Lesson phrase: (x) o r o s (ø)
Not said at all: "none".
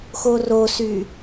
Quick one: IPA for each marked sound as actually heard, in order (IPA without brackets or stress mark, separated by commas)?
x, y